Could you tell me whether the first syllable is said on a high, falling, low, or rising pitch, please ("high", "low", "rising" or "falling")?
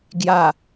low